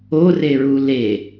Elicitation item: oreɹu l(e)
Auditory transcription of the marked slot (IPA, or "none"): e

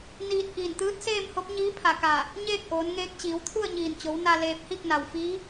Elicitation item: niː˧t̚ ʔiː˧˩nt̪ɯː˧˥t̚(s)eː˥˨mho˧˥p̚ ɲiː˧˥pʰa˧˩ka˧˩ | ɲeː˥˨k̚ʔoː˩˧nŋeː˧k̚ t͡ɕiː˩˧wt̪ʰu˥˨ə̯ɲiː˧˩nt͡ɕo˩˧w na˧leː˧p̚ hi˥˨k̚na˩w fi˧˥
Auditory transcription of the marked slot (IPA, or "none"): s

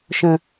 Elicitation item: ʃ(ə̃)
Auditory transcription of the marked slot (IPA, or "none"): ə̃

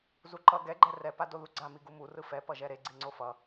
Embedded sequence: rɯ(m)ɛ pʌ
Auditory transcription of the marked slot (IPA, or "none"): f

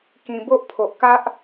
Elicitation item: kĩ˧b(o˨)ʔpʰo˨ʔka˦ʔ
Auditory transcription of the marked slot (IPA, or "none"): o˦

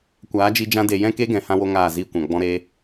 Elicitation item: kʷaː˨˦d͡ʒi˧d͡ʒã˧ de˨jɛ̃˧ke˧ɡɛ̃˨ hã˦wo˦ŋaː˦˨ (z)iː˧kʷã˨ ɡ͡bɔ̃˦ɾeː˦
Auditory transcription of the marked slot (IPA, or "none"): z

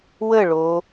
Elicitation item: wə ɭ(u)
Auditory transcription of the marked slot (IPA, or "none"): o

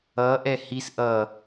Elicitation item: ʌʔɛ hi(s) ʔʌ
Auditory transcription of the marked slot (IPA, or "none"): s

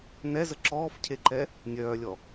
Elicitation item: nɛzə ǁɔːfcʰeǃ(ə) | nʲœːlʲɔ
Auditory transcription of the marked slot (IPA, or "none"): ɛ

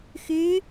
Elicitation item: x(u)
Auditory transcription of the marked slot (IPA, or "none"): y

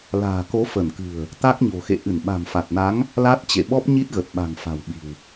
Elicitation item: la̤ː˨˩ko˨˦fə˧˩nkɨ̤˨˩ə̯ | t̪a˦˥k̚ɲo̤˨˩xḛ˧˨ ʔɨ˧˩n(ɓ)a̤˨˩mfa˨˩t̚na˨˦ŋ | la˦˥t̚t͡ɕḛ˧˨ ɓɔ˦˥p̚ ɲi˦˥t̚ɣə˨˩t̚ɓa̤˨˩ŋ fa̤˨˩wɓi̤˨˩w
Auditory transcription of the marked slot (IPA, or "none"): ɓ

